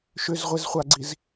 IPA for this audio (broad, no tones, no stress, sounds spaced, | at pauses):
ʃ ʏ z ʁʷ e z χʷ a ɡ͡ǀ i z